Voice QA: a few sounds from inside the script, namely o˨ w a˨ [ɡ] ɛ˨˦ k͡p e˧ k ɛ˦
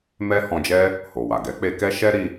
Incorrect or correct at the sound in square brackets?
correct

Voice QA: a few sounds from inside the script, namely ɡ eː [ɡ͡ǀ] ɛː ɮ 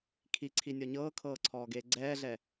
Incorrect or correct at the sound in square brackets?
correct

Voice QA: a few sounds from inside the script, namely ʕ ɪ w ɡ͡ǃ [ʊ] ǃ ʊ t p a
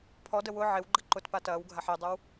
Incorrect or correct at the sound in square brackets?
incorrect: ə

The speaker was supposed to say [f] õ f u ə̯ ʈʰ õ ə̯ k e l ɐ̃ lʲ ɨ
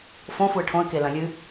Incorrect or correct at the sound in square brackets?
correct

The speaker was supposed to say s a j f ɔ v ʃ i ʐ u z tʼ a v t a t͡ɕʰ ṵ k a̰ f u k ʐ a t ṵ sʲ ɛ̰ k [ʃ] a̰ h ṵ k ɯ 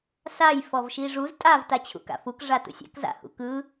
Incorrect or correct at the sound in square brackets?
incorrect: z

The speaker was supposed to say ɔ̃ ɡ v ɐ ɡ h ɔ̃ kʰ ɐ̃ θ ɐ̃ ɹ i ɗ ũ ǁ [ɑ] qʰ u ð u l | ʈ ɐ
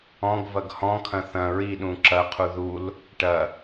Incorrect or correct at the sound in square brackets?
incorrect: ɐ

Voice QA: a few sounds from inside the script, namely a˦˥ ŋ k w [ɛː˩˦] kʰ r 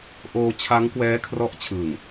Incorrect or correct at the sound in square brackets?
incorrect: ɛː˦˥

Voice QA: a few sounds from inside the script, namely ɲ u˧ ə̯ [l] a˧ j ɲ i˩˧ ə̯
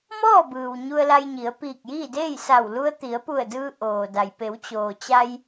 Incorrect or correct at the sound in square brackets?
correct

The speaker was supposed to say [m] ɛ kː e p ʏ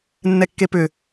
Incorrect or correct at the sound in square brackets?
incorrect: nː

